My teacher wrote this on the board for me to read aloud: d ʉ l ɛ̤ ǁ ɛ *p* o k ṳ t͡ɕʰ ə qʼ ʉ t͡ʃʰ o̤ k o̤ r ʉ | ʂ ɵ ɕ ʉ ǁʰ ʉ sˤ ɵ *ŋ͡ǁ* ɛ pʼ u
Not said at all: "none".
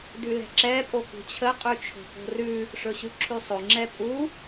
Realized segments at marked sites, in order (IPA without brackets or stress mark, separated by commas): pʼ, ŋ͡ǁ